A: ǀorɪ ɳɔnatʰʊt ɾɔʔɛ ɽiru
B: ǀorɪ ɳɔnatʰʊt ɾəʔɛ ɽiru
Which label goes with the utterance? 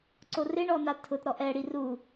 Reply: A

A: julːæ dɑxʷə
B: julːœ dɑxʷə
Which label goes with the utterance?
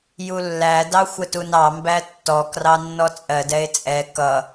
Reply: A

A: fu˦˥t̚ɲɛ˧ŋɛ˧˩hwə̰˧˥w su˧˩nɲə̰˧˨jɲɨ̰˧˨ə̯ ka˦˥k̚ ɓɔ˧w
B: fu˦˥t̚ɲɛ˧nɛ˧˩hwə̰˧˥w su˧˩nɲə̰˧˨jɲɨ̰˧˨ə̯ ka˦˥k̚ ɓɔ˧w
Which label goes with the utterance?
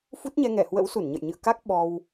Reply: A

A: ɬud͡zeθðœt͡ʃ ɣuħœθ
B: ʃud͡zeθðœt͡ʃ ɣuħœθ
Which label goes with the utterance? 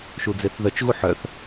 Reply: B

